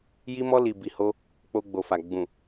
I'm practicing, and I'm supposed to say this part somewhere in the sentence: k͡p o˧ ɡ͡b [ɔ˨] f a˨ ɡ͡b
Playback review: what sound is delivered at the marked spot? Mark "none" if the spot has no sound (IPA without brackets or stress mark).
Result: o˨